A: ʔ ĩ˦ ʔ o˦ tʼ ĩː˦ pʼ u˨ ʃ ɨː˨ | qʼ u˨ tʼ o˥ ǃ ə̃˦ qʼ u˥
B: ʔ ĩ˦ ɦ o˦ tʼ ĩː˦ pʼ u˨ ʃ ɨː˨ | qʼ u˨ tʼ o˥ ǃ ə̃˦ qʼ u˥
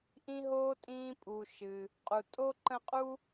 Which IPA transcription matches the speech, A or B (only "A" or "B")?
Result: B